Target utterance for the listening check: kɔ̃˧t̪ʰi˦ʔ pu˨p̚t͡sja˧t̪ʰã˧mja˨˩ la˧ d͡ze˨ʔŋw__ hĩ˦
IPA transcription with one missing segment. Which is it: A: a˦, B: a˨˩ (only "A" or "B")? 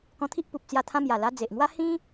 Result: A